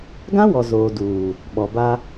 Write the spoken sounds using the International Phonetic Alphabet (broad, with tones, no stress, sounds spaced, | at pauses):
ɡ ã˦ w ɔ˨ z oː˨ d uː˨ | ɓ ɔ˨ b a˦